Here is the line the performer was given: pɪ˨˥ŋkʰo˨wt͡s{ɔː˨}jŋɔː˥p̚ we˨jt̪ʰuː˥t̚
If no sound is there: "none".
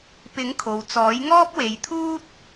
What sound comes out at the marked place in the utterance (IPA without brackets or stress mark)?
ɔː˨˥